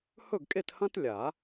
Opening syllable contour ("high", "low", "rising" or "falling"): falling